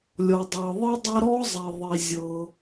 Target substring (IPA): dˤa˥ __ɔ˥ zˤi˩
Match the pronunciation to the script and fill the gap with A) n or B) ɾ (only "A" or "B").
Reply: B